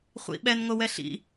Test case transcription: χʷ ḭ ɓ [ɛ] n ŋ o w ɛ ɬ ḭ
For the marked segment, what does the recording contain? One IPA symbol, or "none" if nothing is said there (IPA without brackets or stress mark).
ɛ